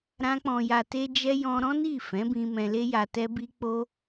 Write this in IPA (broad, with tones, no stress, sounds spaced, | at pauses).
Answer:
ɾ ã˧ k͡p ɔ̃˨ j a˨ t e˧ d͡ʒ ɛ˧ j ɔ̃˧ ɾ ɔ̃˦ n i˦˨ f ɛ̃˨˦ b ĩ˧ m ɛ̃˧ l e˦ j a˧ t ɛ˦ b i˦ k͡p o˦